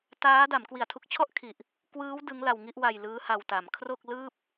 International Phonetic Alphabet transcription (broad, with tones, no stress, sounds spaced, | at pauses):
t aː˦˥ d a˩˦ m k w i˩˦ a̯ tʰ u˨˩ k̚ t͡ɕʰ ɔ˥˩ ʔ kʰ i˨˩ ʔ | k w ɯː˦˥ w d ɯ˦˥ ŋ l a˧ w ŋ i˥˩ ʔ w a˧ j l ɯː˦˥ h a˧ w t a˩˦ m kʰ r o˥˩ k̚ l ɯː˥˩ p̚